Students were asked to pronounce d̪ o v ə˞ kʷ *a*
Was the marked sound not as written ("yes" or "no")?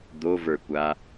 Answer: no